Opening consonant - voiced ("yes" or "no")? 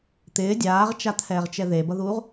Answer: no